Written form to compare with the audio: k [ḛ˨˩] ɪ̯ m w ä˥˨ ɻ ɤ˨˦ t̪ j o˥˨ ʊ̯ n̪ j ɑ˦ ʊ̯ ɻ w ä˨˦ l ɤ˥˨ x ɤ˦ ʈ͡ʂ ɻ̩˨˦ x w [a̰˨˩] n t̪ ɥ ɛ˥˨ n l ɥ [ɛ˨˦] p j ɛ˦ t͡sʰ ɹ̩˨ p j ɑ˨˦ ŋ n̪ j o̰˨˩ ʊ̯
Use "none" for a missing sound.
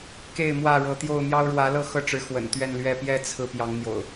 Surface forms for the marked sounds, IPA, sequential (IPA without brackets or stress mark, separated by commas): e˥˨, ə̰˨˩, ɛ˥˨